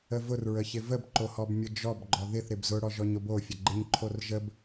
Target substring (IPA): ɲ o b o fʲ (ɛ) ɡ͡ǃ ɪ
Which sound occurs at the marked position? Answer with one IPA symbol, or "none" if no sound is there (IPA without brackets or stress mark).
ə